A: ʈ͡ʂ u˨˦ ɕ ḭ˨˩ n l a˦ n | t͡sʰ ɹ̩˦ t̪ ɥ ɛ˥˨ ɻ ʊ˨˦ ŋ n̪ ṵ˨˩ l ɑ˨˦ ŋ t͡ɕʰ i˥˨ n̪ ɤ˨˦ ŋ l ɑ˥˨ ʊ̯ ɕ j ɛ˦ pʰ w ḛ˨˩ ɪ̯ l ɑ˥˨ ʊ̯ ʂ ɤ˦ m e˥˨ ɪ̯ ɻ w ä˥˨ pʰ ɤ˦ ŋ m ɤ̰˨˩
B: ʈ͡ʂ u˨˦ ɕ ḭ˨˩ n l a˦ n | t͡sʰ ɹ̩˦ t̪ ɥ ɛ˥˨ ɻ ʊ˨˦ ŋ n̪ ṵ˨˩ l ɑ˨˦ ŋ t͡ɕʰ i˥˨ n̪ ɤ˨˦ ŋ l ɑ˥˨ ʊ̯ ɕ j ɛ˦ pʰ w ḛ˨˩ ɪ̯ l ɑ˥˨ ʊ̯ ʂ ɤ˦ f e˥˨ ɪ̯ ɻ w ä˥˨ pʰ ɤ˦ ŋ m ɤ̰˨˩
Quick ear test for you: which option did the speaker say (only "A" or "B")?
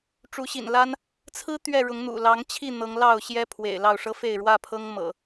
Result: B